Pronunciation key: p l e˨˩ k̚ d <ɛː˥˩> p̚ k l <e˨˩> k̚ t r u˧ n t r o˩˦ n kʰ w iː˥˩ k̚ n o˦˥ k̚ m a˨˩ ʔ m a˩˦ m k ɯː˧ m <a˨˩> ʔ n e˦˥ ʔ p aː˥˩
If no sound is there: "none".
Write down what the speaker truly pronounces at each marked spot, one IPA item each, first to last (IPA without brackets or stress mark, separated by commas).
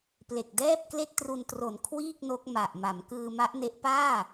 ɛː˥˩, e˥˩, a˦˥